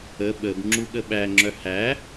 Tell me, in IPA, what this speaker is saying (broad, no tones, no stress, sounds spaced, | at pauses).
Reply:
ə ɓ ə b ŋ͡ǁ u ɠ ə ɓ æ ŋ͡ǁ œ h æ